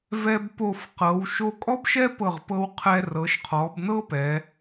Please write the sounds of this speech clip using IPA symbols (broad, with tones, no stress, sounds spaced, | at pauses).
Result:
v ɛ˧ b p o˧˩ f q ɤ˩˧ w ʃ o˧ kʼ ɔ˥ b ʃ ɛ˥ p ɤ˧˩ ʁ p ɤ˧ w qʰ ɛ˧ r ɤ˩˧ ʃ qʰ ɔ˩˧ b n ɤ˥ p ɛ˩˧